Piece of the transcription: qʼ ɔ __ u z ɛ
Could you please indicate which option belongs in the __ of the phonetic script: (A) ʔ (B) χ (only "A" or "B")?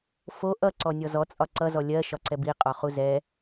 B